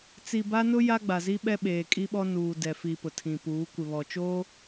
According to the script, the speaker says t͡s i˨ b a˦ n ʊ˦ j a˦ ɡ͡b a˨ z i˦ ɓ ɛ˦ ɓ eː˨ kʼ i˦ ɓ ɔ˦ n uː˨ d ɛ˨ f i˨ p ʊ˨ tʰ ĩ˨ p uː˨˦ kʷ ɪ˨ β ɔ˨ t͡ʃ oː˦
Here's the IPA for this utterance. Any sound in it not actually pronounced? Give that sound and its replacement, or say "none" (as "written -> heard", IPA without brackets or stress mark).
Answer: none